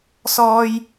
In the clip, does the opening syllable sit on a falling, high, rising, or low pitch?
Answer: high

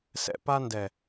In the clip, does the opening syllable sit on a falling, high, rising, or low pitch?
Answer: low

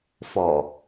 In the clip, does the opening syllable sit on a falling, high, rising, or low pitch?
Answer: low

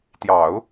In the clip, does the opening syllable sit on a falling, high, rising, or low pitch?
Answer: low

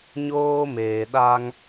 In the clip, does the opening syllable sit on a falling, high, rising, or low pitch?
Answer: high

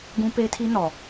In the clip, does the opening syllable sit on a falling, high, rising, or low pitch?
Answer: high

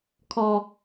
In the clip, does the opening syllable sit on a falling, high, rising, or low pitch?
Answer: high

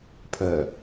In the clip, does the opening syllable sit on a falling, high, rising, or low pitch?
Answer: low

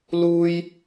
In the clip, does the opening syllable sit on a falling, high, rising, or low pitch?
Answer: high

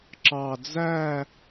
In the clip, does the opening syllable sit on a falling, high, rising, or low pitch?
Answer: low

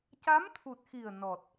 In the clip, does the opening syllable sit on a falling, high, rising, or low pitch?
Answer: rising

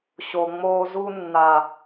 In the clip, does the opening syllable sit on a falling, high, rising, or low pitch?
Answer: low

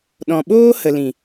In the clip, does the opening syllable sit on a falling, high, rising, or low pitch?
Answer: low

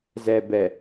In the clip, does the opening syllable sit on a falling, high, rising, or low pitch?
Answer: low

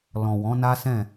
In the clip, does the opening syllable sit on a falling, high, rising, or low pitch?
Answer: low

